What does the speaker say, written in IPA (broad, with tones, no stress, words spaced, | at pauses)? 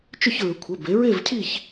t͡ʃʏ˦˨çɹʏ˩˧kʷʰə˩˧˩ be˩˧ɹe˦˨vcʰi˦˨ç